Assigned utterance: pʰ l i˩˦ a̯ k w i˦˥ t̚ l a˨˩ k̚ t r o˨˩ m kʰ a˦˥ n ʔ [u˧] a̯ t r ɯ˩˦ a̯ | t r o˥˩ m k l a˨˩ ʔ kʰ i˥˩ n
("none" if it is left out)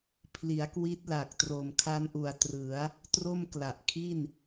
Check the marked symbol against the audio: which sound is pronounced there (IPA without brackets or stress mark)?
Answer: u˨˩